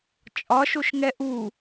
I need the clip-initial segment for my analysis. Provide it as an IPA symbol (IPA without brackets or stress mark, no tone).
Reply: t͡ʃʼ